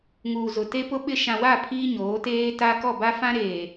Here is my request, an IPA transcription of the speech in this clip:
ŋ uː˨ z ʊ˨ t e˦ p ʊ˦ ɓ ɪ˦ ʃ ã˨ w a˦˨ pʰ iː˦ ɲ oː˨˦ t eː˦ t a˦ k ɔ˦˨ b a˦ f ã˦ ɾ eː˨

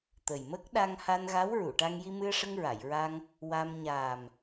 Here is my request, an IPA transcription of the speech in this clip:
t̪ ə˨˩ j m ə˦˥ k̚ ɗ a˧ ŋ h a˧ n ɣ a˧˥ w ɹ u˨˩˨ ʈ a˧ ŋ j i˧ m ɨ˧ ə̯ ʂ ə˧ ŋ ɹ a˨˩˨ j ɹ a˧ ŋ | w a˧ m ɲ aː˨˩ m

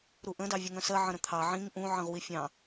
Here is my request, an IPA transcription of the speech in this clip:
ɾ u ʔ ə̃ d ɑ vʲ ə ŋ œ̃ s ɜ ʕ ə̃ ɾ ə̃ t̪ʰ ɑ ʕ ĩ ŋ ʔ ũ ʕ ə̃ ʁ w i fʲ ɑ̃

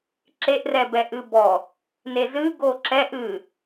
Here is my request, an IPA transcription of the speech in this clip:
ǁ e ʔ r ɛ b ɛ ʔ ɨ b ɔ | n e z ɨ ɡ o ǁ ɛ ʔ ɨ

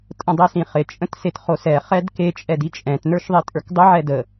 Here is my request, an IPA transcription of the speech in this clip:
tʼ ə̃ dˤ i s ĩ χ ɪ t͡ʃʼ ə̃ t s e t χ o s ɛ χ ɛ d k e t͡ʃʼ ɛ d i t͡ʃʼ ɛ̃ t n ə˞ ʃ ðˤ i tʼ ə˞ k dˤ ɪ ʕ ɛ d ə

